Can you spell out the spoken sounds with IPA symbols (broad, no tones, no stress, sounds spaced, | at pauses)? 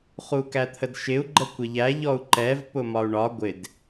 χ u k æ t̪ʰ ə d ʃ ɪ u̯ ɡ͡ǃ ə kʷ ɪ ʎ æ ʎ ɔ u̯ ǃ ɛ v p ʊ m ɒ u̯ ɳ ɒ ɡʷ ɪ d